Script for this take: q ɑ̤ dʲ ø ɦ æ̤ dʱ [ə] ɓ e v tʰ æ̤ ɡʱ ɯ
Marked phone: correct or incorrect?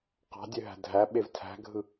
incorrect